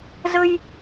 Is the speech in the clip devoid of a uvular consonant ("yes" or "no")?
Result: yes